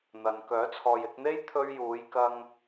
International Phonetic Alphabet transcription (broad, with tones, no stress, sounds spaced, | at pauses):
n̪ ɐ˨ n k œː˨˥ t͡sʰ ɔː˨ j ɪ˧ k̚ n̪ e˥ j t̪ʰ ɵ˧ ɥ j uː˨˧ j k ɐ˧ ŋ